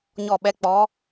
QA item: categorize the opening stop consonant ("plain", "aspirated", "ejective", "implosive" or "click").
implosive